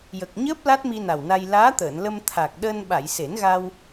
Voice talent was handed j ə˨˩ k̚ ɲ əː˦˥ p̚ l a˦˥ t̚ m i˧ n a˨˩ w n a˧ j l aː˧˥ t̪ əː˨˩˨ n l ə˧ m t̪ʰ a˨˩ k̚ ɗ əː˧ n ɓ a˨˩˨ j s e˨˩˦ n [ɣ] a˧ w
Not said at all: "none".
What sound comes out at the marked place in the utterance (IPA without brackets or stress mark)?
ɣ